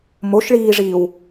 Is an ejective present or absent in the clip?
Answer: absent